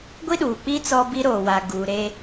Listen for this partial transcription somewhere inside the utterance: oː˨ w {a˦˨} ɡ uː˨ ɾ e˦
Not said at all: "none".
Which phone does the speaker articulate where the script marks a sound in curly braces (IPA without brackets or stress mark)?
a˨